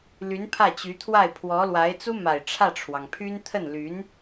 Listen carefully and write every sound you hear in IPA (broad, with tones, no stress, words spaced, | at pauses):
ly˧˥npʰä˥˩t͡ɕy˧˥t̪ʰwa˥˩ɪ̯ pʰwɔ˧˥lwa˧˥ɪ̯ t͡su˥ma˨˩ɪ̯ ʈ͡ʂʰä˥˩ʈ͡ʂʰwɑ˩ŋpʰy˥n t̪ʰə˥˩nly˧˥n